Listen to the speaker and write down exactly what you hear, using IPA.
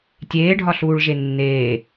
tʲ eː ɖʱ ɒ ɬ uː ɭ ʒ e nː eː

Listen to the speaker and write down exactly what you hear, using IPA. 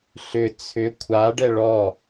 ɬ ʏ t͡sʰ ʏ kʷʰ a ɖ ɛ ɭ ɔ

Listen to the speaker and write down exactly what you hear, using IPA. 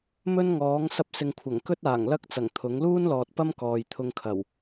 m ɵ˥ n ŋ ɔː˨˥ ŋ s ɐ˧ p̚ s ɪ˨ ŋ kʷʰ ɐ˨˩ ŋ k ɵ˥ t̚ aː˨˩ ŋ l ɐ˥ k̚ t͡s ɐ˨˩ ŋ t̪ʰ ʊ˨˥ ŋ l uː˥ n l ɔː˨ t̚ p ɐ˥ m k ɔː˨ j t̪ʰ ʊ˧ ŋ kʰ ɐ˨˩ w

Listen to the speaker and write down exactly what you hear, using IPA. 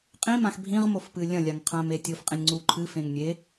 qʼ ĩ m ã x bʱ ĩ ʁ m o f p ɨ lʲ ɐ̃ lʲ a ŋ qʰ ã m e tʲ o f qʼ ĩ nʲ ŋ͡ǀ u ǃʰ ɨ f ẽ ŋ nʲ e

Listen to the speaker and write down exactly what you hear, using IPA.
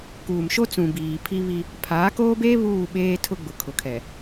k uː˨ m ʃ o˦ t͡s ũ˨ b iː˨ pʰ i˦ β i˦ | pʰ aː˨˦ k oː˦ b eː˦ β uː˦˨ ɓ eː˦ tʰ ʊ˦ ɡ͡b ʊ˨ kʰ ʊ˨ kʰ ɛ˨

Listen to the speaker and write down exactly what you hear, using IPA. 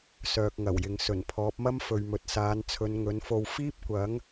s œː˨ k̚ ŋ ɐ˨˩ w j ɪ˨ ŋ s ɵ˨˩ n pʰ ɔː˨˥ p̚ m ɐ˥ m f ɵ˨ ɥ m ɵ˨ t̚ s aː˨˧ n t͡sʰ ɵ˨˧ n ŋ ɵ˨˥ n f o˧ w f iː˥ p̚ kʷ ɐ˨˥ ŋ

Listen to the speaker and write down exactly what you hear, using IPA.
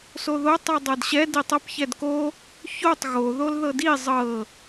s o ð o tˤ ʉ dˤ ɤ d ɕ ɛ d i tˤ ʌ p ç ɛ d k o | ç o tˤ ɣ o ð o l ð ɤ d i zˤ ɤ

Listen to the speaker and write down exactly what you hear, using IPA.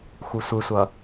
x u sʷ ɯ sʷ ʌ

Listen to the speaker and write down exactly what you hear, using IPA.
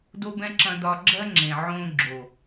d o˦ b ɛ̃˦ ǁ ɐ̃˧ d ɒ˧ ɡ͡ǁ ɜ˦ ŋ͡ǁ ẽ˨ ʕ õː˦ ɡ͡ǁ o˨

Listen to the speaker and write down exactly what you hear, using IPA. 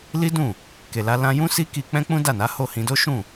l i˦ d ũ˦˨ | k e˨ l a˧ l ã˧ j ũ˦ s i˦ k i˧ k͡p ɛ̃˦ k͡p ũ˦ d a˦˨ n a˨˦ h o˦˨ h ĩ˧ d o˦ ʃ ũ˦˨

